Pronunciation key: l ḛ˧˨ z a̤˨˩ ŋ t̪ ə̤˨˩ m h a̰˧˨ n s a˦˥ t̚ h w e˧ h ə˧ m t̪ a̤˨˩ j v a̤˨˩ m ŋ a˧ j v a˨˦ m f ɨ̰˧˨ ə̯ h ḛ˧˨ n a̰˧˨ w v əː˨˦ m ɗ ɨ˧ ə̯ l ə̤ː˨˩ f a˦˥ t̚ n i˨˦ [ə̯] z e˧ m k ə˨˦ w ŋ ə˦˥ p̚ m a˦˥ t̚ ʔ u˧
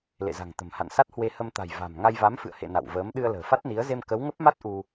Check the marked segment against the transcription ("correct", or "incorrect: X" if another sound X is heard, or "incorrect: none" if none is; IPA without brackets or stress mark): correct